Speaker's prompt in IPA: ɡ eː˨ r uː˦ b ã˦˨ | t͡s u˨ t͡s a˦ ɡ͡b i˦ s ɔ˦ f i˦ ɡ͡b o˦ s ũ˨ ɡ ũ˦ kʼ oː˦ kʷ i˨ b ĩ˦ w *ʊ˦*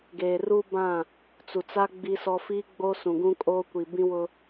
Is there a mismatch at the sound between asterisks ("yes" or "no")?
no